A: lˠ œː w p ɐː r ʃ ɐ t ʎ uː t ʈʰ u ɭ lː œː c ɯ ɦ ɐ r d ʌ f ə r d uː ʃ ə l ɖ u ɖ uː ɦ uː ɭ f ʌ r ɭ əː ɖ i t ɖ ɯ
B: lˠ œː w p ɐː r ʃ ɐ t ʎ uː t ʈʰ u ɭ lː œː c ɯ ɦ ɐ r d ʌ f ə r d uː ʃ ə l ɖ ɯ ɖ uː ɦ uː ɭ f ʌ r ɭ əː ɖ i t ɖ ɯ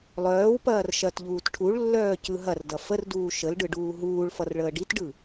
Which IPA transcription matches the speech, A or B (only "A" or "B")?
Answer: B